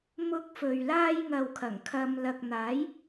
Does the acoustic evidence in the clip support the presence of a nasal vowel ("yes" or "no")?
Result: no